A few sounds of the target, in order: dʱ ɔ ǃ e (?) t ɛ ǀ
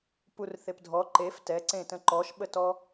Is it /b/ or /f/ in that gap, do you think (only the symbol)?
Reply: f